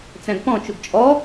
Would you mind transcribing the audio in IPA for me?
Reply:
t͡s æ̃ ɡ p ɔ̃ t͡ʃ u ɡ t͡ʃʼ ɔ

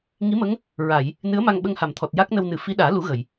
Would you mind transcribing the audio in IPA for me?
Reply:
ŋ i˧˥ m ə˧˥ ŋ | ɹ a˨˩˨ j | n ɨ˧˥ ə̯ m a˧ ŋ ɓ ə˧ ŋ h a˨˩ m t̪ʰ ɔ˨˩ t̚ j a˦˥ k̚ n ə˧ w n ɨ˨˩ f i˧˥ ɗ aː˨˩˦ l u˨˩˦ ɣ ə˨˩˨ j

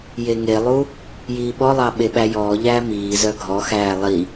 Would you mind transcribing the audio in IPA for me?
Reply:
j e ŋ e lˠ u | j iː ɓ ɔ lˠ ɑ ɓ e ɓ æ j ɔː ʎ æː m iː z œ ɡʱ ɔ x æː lˠ i

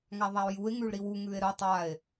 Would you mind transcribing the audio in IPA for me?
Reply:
ŋ a ðˤ a o̯ j u e̯ ŋ ʉ ɭ ɾ i w u ŋ ʉ e̯ ɾ ɨ tˤ a e̯

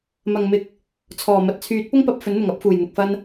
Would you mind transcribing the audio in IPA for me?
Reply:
m ɐ˨ ŋ m ɪ˨ k̚ | t͡sʰ ɔː˨˩ m ɐ˨ t̚ t͡sʰ yː˨˥ t̚ p ʊ˥ ŋ p ɐ˨ p̚ f ɵ˨˥ n n̪ ʊ˨˩ ŋ ɐ˨˥ p̚ f uː˨˩ j n̪ ʊ˨ k̚ f ɐ˧ n

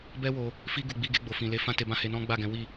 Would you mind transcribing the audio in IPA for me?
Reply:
b ɛ˦ w o˧ | f i˧ ɡ u˨ ɡ͡b i˨˦ ɡ e˧ ɡ͡b o˨ f ĩ˨ l e˨ f ã˧ t e˧ b ã˦ h e˧ n ɔ̃˦ ɡ͡b a˦˨ ɡ ɛ̃˨˦ w i˦˨

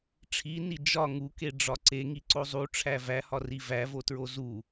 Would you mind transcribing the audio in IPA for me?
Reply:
ʈ͡ʂʰ i n i d͡ʒ ɒ ŋ u k e ɖ͡ʐ ɒ ǀ e ŋ i ǀ o zˤ u ʈ͡ʂʰ æ v æ h ɒ r i v æ v o t ɹ o z u

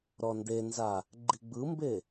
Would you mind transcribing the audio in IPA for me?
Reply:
ɾ ɔ n d e n z a | ɡ͡ǃ i ɡ͡b ɯ m b e

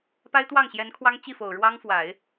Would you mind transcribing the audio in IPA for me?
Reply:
p a˥ ɪ̯ t̪ w ɑ˥˩ ŋ ɕ j ɛ˧˥ n kʰ w ɑ˥ ŋ t͡ɕ i˥˩ f o˨˩ ʊ̯ ɻ w ɑ˥ ŋ f w a˨˩˦ ɪ̯

